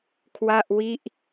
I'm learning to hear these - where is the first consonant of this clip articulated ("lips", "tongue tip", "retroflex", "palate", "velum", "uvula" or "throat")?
velum